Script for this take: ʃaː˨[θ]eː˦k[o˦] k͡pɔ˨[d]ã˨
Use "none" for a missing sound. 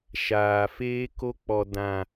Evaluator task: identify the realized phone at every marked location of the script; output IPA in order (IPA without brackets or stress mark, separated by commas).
f, o˦, d